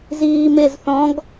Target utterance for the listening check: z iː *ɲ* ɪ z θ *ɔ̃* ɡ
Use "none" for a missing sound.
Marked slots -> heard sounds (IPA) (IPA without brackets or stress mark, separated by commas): m, ɔ̃